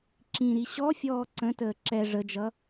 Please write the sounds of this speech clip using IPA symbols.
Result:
ǁ ĩ ɾ i ɕ ɔ fʲ ɔː ǀ ə̃ t əː ǁ ɛ ʐ ə d͡ʒ ʌ

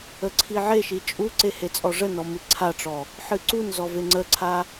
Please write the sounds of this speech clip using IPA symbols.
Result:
ə ǀʰ i ʕ e ʃ i t͡ʃʼ u ǀ e h e t͡sʼ ɔ ʐ ə n ɔ m ɨ ǀʰ a ʈ͡ʂ ɔ | ħ ɨ ǀ u n z ɔ v e ŋ͡ǀ ə ǀʰ a

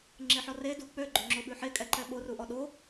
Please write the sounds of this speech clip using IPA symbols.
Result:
ŋ͡ǁ e ħ ɔ r e d u k͡p ø ɡ͡ǃ ø ŋ͡ǁ o ɓ ʉ ħ e kʼ ɛ ǃ ɛ ɓ o r u ʔ ɔ ɗ o

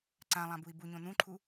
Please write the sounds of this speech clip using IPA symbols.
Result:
ǀ ã lˠ ã b u i̯ b u ɲ õ n̪ ũ ǃʰ u

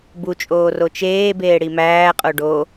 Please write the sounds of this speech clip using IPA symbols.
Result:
b u t͡ʃʼ oː r o t͡ʃ eː b eː ɽ i m æː qʼ o ɖ o

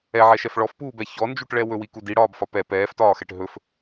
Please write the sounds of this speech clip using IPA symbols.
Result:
ɛ ʕ ɛ ʃ ɛ f ɭ ɔ f p uː b ɛ ç ɔ n d͡ʒ u ʈ ɭ ɛ w ɵ w i k u d i ɽ ɒː b f ɒ p ɛ p ɛː f t ɒː x ɛ ʈ ɦ ɵ f

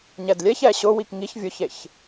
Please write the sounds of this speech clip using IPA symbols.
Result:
ɲ ɛ d lʲ ɛ ç ɛ ɕ ʊ w i k ŋ i ç vʲ ʊ ç e ç

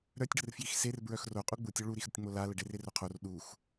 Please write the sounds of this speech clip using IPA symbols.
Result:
ɾ œ tʲ ɖ ə r f j i x s e r b ɹ œ x r o qʼ u ɡ͡b u tʲ o ɭ u ɾ i x ɾ ə tʲ ŋ͡m o l a l ə ɖ e r e r o qʰ o r ɗ u x

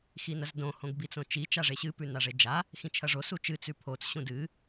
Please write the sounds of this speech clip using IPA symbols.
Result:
x i n ɐ z d õ h õ ɡ b i t͡s õ t͡ʃ i t͡ʃ a ʐ e ɕ ɨ p ʉ n a ʐ e d͡ʒ a | x ĩ t͡ʃʰ ɐ ʐ o s u t͡ʃ ɨ t͡s ʉ pʰ o t͡s ɕ ũ d ɨ

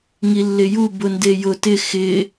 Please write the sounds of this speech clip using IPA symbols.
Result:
ŋ i lː ɪ j u b ʊ n d e j ʊ t ɪ x ɪ

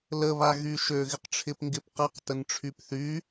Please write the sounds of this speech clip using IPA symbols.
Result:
l ə β a ɣ y ʃ ø ɣ ɪ q ʈ͡ʂʰ ɪ p ŋ ɡ ɪ p q ɐ q t ə n ʈ͡ʂʰ y p θ y

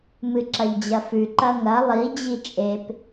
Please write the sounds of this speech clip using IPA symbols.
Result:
m ɨ ǁ ɐ ʎ d͡ʑ ɐ f ʉ ǃ ɐ ŋ ɐ lˠ i d͡ʑ i t͡ʃʼ e p

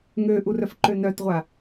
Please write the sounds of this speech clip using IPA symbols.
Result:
ŋ ø ʔ u r œ f ǃ ø n œ t ʁʷ a

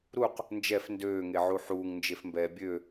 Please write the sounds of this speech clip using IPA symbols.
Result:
ɾ u q | n d͡ʒ ɛ f n d øː ŋ e ʕ u ħ uː ŋ n d͡ʒ e f m b ɛː bʲ ø

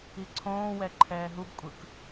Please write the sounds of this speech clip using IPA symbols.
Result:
i ǀʰ õː w ɛ ǃʰ ɛː ɦ u b kʷʼ ɯ k

